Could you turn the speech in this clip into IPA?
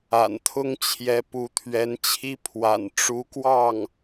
a̰˨˩ n t̪ʰ ʊ˥ ŋ t͡ɕʰ j ɛ˧˥ p u˧˥ t̪ʰ ɥ ɛ˧˥ n t͡ɕʰ i˥ pʰ w a̰˨˩ n ʈ͡ʂ u˧˥ k w ɑ˥˩ ŋ

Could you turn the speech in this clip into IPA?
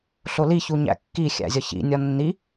ɬ o l i ç u ɲ æ̰ kː i xʲ æ̰ zʲ ɒ ç ḭ nʲ ɒ nː i

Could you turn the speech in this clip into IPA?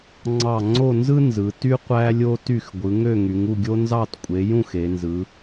ŋ͡ǀ ɑ˥˧ ŋ͡ǀ o˥˧ n z ɯ˥ n z ɯ˨˦ t y˥ qʷ æ˥ lʲ o˥ t y˥˧ x ɡʷ ɯ˨˦ ŋ ø˥˧ ŋ y˨˦ ŋ u˥˧ ɡʲ o˥ n z ɑ˥˧ t kʷʼ e˨˦ j ũ˥˧ x e˨˦ n z ɯ˨˦

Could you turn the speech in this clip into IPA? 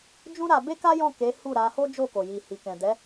d͡ʒ ũ˦ ɾ a˧ b e˦ k a˦ j ɔ̃˦˨ k e˨˦ h u˦˨ ɾ a˧ h o˦ d͡ʒ o˦˨ k o˨ j i˨ h i˨ k ɛ̃˨ d ɛ˨˦

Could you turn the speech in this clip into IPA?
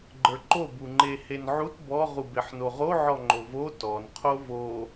ɡ͡ǃ ə˞ ǃ o b u ŋ͡ǃ e h e n ʕ u t b ɔ ʁ u b e ħ n o ʁ o ʕ ɔ ŋ͡ǃ o v o t ɔ n qʰ o v o

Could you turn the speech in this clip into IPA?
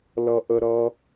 l ʌ˦ ʔ ə˦ ɾ ʌ˦

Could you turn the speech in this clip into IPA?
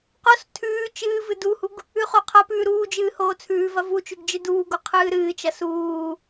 q o s tʰ ʉː t͡ʃ ɨː v ɨ d u h u ɡ | ʉ χ o qʰ ɐ p ʉː ɾ uː d͡ʒ ɨː h oː t͡sʰ ʉː v ɐ v u t͡ʃ ʉ ɡ d͡ʒ ɨ d uː ɡ o qʰ ɨː ɾ ɨː t͡ʃ ɐ s uː

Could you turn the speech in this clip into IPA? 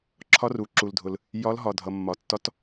ǁʰ ɒ˧˥ r u˩ ǁ u˩ l dʱ ʊ˩ l | j ɒ˧˥ l ɦ ɒ˩ dʱ ʌ˩ mː ɒ˩ tː ɒ˧˥ t

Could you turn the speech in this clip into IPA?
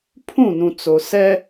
pʰ ũ˦˨ n ũ˨ t͡s o˨ s ɛ˦

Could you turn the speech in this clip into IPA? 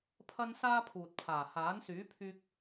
pʰ ɐ˥ n s aː˥ pʰ uː˨ t̚ pʰ aː˨˩ h aː˨˥ n s yː˨˥ pʰ yː˧ k̚

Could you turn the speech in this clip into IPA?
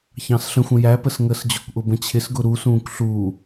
ç ɑ̃ s ɬ ə̃ xʷ ə̃ j æ p ə s ŋ əː s d͡ʑ ʊ kʷ ʔ ʊ b ə̃ t͡ɕʰ ɪ s ɡ ʊ ɾ u s ũː kʷ ɬ uː

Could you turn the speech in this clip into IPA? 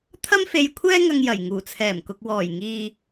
t̪ʰ ɐ˥ m f e˧ j kʷʰ ɛː˥ ŋ ɐ˧ ŋ j ɐ˨˩ j ŋ uː˨˩ t͡sʰ ɛː˨˩ m k ʊ˨ k̚ w ɔː˨˩ j ŋ iː˨

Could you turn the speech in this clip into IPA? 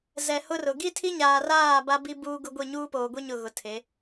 z ɛ˨ h ʊ˦ r ʊ˨ ɡ i˦ tʰ i˦ ɲ aː˨ r aː˦˨ b a˦ b i˦ b uː˦ ɡ ʊ˦ ɡʷ i˦˨ ɲ uː˦ p oː˨ ɡʷ i˦ ɲ ʊ˦˨ ɣ ʊ˨˦ tʰ e˨˦

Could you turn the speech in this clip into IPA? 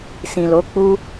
s ĩ˨ l o˨˦ k͡p u˦

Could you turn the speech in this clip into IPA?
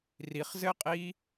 r i χ z ɘ qʼ i

